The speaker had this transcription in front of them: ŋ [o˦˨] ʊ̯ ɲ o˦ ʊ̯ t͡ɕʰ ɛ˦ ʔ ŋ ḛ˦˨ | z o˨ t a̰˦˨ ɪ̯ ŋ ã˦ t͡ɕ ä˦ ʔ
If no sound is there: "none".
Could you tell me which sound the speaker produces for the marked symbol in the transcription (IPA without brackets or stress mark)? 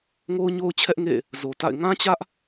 o˦